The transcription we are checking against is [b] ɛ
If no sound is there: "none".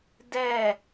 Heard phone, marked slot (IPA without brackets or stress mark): d